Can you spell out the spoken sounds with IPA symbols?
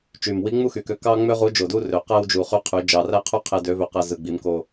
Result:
t͡ʃ y˨˩ m w i˧˥ ŋ͡m u˥ x y˨˩ k ø˧ k ɑ˥ ŋ͡m ø˥ ʁ u˧˥ d͡ʒ o˨˩ d u˥ r ø˩˧ q æ˥ w d͡ʒ u˨˩ χ y˧˥ qʰ y˩˧ d͡ʒ ɑ˨˩ r æ˥ qʰ y˥ qʰ e˧ d ø˧˥ v ø˧ q æ˧ z ɯ˨˩ ɡ͡b i˩˧ m k o˨˩

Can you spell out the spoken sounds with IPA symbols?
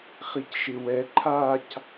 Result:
χ i c ʃ ɪ w ɛ ǃʰ a c

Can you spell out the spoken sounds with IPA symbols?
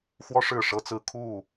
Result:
x w ɔ˦ ʂ ɻ̩˥˨ ʂ ɤ˦ t͡s ɹ̩˥˨ kʰ u˥˨

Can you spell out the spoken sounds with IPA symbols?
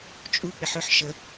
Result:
t͡ʃʼ u k͡p ɪ ħ ɵ ħ ʃ ə

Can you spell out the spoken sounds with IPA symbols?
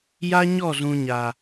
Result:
j a˦ ɲ ɔ˦˨ z ũ˨ ɲ a˨

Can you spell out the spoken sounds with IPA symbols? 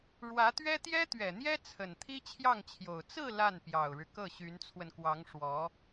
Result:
ɻ w ä˧˥ t̪ ɥ ɛ˥ t̪ j ɛ˥ t̪ ɥ ɛ˨˩ n̪ j ɛ˥ t͡sʰ ə˨˩ n t̪ʰ i˥ t͡ɕʰ j ɑ˥˩ ŋ t͡ɕʰ j o˨˩ ʊ̯ t͡s ɹ̩˥˧ l a˥˩ n p j ɑ˨˩ ʊ̯ ɻ ɻ̩˦ k ɤ˥˩ ɕ y˧˥ n t͡sʰ w ə˧ n k w ɑ˧˥ ŋ ʂ w ɔ˧˥

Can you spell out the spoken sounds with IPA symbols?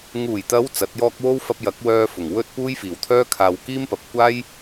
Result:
ŋ uː˨˩ j t̪ ɐ˨˧ w t͡s ɐ˨˥ t̚ j ɔː˥ k̚ w o˥ w f ɐ˧ p̚ j ɐ˨˥ k̚ w œː˧ f ʊ˨˩ ŋ w ɵ˥ t̚ p uː˥ j f iː˨˩ w t̪ʰ œː˥ kʰ aː˨ w k iː˥ m p ɐ˨ p̚ kʷ aː˥ j

